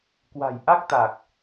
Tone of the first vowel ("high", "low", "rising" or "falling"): low